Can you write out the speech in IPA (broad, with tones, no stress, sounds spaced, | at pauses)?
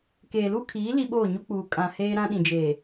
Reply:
k eː˨ l u˦ kʰ iː˨˦ l i˦ ɓ oː˦˨ ɲ u˦ k͡p uː˨ kʼ ã˨ h eː˦ ɾ ã˦ ɗ ĩ˨ d͡ʒ eː˨